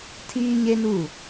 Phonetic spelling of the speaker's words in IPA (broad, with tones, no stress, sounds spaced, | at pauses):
tʰ iː˦ ɲ e˦ n u˦˨